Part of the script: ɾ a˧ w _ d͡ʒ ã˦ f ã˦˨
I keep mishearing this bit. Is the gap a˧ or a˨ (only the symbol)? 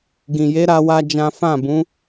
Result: a˧